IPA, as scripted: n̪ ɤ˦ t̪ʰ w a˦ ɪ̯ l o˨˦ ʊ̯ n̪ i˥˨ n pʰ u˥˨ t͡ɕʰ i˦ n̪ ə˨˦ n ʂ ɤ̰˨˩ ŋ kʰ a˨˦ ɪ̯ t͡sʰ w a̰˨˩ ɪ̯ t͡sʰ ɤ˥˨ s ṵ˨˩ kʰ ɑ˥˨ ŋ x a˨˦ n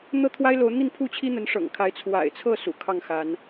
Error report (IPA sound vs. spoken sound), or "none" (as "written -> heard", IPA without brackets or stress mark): none